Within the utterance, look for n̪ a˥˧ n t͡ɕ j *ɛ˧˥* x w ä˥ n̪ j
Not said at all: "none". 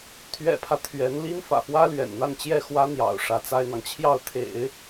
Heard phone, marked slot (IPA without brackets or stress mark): ɛ˥˩